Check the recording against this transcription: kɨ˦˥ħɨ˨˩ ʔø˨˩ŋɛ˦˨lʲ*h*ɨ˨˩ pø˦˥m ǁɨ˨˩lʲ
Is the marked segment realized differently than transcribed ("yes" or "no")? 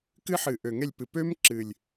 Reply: yes